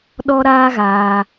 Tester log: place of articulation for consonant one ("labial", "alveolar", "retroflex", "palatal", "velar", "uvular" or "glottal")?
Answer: alveolar